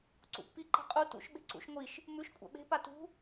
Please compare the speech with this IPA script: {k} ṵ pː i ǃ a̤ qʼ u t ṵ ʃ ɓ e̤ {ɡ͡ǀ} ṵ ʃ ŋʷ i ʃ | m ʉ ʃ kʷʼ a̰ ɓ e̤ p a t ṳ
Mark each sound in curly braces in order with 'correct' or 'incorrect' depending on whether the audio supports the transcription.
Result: incorrect, incorrect

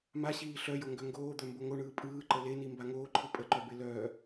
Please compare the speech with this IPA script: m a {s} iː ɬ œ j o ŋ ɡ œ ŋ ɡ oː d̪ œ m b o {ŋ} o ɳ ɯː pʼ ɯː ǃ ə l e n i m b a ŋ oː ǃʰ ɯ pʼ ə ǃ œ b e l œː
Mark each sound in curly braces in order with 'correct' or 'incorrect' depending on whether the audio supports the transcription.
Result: incorrect, correct

